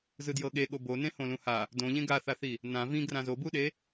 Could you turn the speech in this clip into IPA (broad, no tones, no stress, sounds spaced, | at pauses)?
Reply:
z ɯ d j ɤ ɠ e ɠ o b o n ẽ h õ l ũ h a | d õ ʎ ẽ ɡ a θ a θ i | n ã v ĩ ɡ r ã z o b u ɗ e